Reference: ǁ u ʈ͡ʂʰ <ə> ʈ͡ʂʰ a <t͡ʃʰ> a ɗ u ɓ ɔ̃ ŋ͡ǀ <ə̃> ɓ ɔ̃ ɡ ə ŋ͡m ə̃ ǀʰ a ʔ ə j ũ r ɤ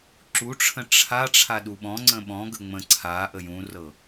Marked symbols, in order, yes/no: no, no, yes

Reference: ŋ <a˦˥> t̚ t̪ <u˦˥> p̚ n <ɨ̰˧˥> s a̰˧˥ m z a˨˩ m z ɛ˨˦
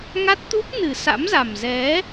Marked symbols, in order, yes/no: yes, yes, no

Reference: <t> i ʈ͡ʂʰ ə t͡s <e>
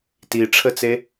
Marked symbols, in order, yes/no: yes, yes

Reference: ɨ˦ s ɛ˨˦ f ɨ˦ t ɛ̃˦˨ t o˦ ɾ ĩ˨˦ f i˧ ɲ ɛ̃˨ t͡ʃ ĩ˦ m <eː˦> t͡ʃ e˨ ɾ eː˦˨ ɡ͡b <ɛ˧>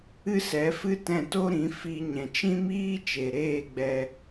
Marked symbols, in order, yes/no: no, yes

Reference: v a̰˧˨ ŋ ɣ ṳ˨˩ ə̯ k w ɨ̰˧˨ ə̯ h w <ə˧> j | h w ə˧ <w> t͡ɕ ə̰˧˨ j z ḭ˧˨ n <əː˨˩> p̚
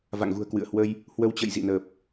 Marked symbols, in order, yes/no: yes, yes, yes

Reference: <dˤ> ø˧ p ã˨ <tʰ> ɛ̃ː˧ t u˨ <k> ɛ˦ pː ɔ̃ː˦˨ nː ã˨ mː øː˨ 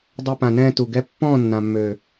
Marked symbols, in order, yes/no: yes, no, no

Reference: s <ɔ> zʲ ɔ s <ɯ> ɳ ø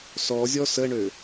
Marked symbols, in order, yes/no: yes, no

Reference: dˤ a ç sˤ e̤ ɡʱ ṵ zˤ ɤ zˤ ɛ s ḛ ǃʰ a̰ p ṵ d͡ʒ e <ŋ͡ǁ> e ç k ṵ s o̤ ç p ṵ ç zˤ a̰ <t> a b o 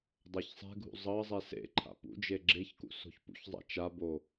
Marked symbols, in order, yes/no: no, no

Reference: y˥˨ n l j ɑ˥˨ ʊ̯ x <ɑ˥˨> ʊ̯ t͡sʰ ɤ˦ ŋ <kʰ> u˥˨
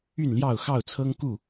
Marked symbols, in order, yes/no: yes, no

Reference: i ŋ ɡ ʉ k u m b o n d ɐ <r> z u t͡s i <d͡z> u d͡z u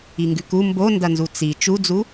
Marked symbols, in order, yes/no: no, no

